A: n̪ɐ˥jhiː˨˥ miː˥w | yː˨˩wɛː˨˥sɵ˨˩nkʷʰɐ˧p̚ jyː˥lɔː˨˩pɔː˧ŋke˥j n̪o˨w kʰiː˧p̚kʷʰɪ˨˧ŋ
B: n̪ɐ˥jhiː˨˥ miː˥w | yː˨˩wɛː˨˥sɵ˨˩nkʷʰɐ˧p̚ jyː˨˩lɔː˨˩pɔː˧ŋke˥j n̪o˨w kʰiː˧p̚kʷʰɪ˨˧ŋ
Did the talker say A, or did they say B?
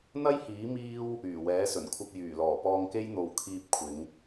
B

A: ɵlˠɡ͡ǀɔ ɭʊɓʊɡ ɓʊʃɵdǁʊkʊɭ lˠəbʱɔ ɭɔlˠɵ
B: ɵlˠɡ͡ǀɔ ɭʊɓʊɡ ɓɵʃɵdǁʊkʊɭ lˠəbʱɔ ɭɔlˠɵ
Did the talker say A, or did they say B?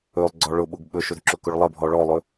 B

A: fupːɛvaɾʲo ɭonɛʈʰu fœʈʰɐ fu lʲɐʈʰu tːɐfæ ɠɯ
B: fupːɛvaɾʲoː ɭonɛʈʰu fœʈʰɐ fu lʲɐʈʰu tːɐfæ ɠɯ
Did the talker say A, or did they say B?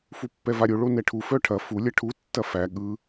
A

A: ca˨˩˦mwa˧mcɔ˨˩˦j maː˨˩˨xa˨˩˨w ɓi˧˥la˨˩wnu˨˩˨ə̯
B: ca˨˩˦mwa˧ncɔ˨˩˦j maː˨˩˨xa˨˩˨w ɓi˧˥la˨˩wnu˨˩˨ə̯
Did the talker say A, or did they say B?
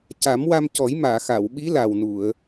A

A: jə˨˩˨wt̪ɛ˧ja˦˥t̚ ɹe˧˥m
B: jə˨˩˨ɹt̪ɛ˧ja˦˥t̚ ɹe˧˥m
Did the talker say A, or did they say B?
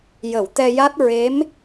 A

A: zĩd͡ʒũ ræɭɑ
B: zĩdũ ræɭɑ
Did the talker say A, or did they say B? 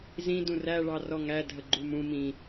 B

